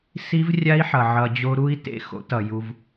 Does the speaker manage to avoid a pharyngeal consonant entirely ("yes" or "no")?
no